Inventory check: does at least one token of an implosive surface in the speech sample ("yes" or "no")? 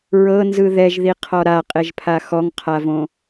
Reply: no